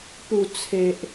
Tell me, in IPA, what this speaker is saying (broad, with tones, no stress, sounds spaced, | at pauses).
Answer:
p u˨˩ t͡sʰ e˨ ʔ